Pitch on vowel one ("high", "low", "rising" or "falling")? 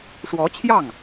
rising